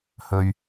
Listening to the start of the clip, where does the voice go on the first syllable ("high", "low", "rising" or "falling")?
low